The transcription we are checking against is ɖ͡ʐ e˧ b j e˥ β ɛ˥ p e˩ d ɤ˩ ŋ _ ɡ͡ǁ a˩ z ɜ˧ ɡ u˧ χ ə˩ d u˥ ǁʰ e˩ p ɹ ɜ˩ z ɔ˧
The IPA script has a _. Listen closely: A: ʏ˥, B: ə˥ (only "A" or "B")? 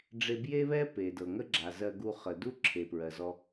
B